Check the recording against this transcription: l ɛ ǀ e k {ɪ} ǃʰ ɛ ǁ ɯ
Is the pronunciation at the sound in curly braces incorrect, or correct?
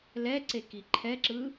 incorrect: i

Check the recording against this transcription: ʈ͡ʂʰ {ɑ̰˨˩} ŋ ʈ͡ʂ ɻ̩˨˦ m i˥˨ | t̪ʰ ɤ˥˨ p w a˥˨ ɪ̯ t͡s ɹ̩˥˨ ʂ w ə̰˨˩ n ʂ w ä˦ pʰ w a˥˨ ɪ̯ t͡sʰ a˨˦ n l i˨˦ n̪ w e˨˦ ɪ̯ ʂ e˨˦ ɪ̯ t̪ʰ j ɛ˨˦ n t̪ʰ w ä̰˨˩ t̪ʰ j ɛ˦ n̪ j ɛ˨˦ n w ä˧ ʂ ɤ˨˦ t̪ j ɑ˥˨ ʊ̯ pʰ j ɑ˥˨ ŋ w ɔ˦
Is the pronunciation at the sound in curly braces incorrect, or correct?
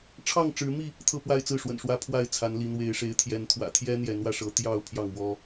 incorrect: ɑ˥˨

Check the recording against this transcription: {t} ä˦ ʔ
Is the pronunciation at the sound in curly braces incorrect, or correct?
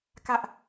incorrect: k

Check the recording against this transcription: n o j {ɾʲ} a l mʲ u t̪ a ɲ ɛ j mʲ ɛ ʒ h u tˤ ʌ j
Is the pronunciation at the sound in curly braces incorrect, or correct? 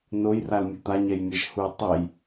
incorrect: r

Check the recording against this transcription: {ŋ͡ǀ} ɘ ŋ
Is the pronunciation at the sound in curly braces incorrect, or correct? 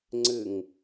correct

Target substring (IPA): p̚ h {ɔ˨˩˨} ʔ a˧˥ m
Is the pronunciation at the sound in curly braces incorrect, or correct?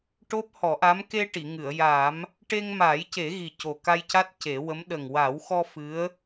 incorrect: ɔ˨˩˦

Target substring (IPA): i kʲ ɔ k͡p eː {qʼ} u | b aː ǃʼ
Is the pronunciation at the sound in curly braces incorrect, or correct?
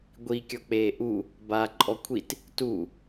incorrect: ʔ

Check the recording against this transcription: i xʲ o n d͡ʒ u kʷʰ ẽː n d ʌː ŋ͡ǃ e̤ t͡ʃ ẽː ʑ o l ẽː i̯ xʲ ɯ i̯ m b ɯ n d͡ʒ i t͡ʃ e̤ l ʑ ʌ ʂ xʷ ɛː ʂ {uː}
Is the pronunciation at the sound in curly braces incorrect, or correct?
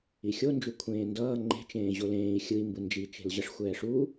correct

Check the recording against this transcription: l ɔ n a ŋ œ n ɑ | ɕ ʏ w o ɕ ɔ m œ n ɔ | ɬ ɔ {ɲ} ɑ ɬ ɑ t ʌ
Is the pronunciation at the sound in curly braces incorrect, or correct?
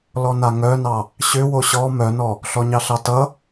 correct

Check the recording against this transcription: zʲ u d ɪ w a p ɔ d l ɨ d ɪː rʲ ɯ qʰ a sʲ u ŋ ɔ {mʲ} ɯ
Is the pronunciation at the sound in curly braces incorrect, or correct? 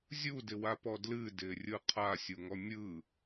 correct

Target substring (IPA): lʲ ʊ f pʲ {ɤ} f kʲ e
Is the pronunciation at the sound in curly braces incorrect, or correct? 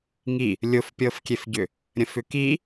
correct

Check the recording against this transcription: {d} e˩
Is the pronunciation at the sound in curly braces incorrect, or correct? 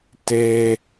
incorrect: t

